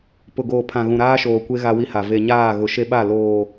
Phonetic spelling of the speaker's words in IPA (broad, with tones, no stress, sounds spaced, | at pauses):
p ʊ˨ ɡ oː˨ pʰ ã˨ ɣ ũ˨ ɾ aː˦ ʃ oː˨ kʷ e˦ ɣ a˦ w i˦ h a˨ v e˨ ɲ aː˦˨ ɣ ʊ˨ ʃ e˦ ɓ a˦˨ l oː˨